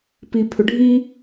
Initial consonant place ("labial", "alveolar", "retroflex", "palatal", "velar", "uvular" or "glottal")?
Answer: labial